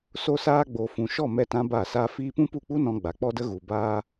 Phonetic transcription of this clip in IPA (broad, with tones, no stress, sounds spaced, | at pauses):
s o˦ s aː˦ ɡ͡b o˨ f ũ˨ ʃ ɔ˦˨ m ɛ˦ t ã˦ b a˦˨ s a˦ f iː˦ p ũ˦ p u˦˨ k͡p u˦ n ɔ̃˧ ɡ͡b a˨ k͡p ɔ˦ d ə˦ ɣ u˨ b aː˦